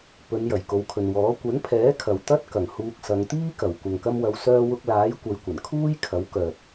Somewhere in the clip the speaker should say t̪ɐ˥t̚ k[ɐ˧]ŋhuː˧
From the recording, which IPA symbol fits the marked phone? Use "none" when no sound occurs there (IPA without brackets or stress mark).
ɐ˨˩